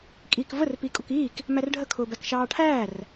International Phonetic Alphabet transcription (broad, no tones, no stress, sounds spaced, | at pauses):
kʼ iː k v ə r p i kʼ ʊ k iː k | m æ r ɖʱ ə kʰ ʊː b æ k ʃ ɑː ʈʰ æː r